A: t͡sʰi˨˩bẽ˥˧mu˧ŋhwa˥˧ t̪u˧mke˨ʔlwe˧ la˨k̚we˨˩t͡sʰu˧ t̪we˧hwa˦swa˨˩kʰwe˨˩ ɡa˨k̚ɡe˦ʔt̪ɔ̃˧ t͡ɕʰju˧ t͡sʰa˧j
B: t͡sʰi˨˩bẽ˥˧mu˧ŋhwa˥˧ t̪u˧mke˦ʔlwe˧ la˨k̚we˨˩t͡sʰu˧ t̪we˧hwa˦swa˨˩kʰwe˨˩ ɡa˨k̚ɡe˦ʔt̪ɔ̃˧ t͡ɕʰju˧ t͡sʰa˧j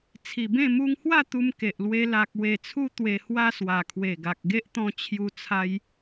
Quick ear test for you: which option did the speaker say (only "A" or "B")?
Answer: A